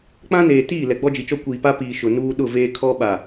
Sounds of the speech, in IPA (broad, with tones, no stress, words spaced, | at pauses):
k͡pã˦neː˨tiː˦˨ lɛ˨ɡ͡bɔ˦d͡ʒi˨t͡ʃɔ˦ kʷiː˨pa˦piː˨ ʃʊ˨nuː˦ ɗʊ˦˨veː˦ kʰɔ˦ ɓa˨